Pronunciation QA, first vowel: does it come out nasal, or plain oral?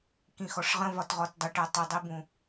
nasal